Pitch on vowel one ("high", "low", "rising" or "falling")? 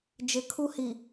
rising